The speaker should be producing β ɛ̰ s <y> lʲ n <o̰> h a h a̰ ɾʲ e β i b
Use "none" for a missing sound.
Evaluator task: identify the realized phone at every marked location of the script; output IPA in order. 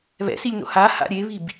i, o̰

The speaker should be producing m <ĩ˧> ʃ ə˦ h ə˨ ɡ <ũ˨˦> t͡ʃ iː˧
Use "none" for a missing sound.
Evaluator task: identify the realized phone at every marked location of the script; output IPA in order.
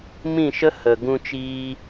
ĩ˦˨, ũ˧

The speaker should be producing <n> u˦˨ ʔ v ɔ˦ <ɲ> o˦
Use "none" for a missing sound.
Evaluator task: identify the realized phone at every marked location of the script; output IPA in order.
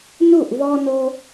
n, n

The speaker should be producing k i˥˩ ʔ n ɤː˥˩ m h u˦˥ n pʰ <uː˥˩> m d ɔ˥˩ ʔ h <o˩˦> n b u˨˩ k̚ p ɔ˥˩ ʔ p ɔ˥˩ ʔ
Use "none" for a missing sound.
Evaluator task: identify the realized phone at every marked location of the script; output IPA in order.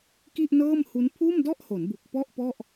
uː˥˩, o˩˦

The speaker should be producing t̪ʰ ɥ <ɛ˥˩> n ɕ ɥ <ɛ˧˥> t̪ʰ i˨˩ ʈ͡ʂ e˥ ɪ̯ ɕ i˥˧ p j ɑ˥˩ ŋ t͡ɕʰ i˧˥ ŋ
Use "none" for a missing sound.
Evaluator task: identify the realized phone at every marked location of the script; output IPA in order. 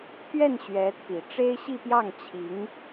ɛ˥˩, ɛ˧˥

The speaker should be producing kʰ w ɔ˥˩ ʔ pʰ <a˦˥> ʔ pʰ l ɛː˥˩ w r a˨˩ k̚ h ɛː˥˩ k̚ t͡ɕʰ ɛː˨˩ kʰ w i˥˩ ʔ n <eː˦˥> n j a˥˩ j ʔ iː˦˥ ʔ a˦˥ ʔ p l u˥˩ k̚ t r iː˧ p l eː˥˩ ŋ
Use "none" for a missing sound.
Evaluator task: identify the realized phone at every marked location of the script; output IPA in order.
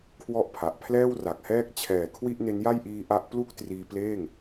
a˨˩, e˦˥

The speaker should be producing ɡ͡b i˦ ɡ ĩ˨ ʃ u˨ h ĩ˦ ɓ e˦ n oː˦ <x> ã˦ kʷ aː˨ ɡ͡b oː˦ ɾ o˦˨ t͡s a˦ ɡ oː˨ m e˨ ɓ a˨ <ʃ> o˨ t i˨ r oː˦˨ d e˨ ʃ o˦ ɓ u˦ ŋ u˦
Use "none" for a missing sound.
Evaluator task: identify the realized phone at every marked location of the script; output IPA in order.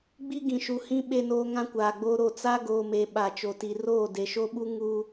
ŋ, t͡ʃ

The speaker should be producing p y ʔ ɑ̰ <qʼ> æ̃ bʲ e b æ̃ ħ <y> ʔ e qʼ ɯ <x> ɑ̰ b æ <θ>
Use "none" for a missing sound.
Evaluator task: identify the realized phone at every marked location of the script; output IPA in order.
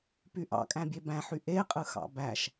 kʼ, y, x, ʃ

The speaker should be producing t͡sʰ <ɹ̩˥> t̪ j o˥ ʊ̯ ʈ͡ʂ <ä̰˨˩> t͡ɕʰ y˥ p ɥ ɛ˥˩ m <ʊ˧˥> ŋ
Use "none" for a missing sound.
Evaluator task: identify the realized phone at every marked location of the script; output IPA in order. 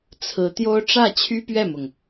ɹ̩˧˥, ä˥˩, ʊ˩

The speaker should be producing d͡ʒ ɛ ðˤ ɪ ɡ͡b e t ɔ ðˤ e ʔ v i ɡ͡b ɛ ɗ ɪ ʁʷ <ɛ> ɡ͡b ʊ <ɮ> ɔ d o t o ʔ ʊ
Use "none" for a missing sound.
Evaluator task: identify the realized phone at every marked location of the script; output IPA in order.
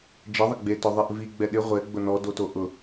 ɛ, n

